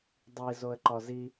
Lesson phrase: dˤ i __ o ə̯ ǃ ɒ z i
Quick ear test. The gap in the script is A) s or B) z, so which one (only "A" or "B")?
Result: B